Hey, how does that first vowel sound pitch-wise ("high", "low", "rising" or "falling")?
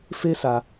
high